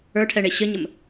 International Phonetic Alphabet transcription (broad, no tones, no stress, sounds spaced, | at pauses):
ə˞ ʈʰ ɛ ɳ e ɕ ə ɲ ə m